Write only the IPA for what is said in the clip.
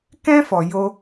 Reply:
k ɛ̃˦ f ɔ˧ j o˦

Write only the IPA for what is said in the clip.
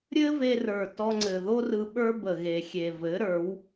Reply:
ɾʲ ɘ˦ v e˧ r ə˞˨ t ɔ˧ ŋ͡ǀ ɘ˨ ð o˦ r ɯ˧ ɓ ə˞˦ b ə˨ ɣ e˨ xʲ e˨ v ɘ˨˦ ɾ ə˞˨˦ w

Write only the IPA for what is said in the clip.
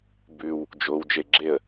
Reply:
b ʉ w | d͡ʒ o w d͡ʒ e ɡ͡ǁ e ə̯

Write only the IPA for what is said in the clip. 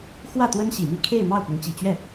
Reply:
x w ä˥˩ t̪ w ə˥ n ɕ i˨˩ m i˥˧ kʰ e˥˧ ɪ̯ m ɑ˥˩ ʊ̯ p ʊ˧˥ ŋ t͡ɕ i˨˩ t͡ɕ ɥ ɛ˥˩

